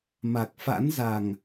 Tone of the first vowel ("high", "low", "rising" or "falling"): low